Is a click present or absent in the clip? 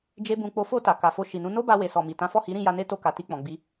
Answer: absent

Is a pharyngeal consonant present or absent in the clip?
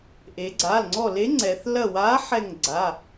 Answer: present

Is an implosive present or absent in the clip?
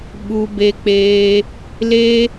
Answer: present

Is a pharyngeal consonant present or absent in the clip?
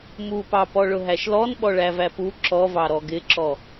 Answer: absent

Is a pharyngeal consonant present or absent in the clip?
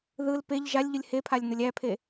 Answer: absent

